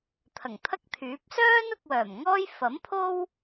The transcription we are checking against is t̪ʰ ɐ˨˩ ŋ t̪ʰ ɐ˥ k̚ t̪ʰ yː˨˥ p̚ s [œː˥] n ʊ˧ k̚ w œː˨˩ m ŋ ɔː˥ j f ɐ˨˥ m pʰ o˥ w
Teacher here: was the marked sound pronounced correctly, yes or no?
yes